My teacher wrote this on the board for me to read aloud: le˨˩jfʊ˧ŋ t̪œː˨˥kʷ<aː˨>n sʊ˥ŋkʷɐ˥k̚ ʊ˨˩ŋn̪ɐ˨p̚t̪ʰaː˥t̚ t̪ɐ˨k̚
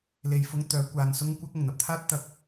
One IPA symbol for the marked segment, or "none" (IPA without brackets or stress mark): aː˨